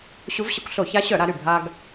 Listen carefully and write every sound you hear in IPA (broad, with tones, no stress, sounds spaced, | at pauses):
ɕ u˧˥ v ɕ ə˧˥ kʷ ɬ o˧˩˧ ç a˧˥ ɕ œ˧˩˧ ɾ a˩˧ ɾ y˨˩ bʱ a˧ ɡ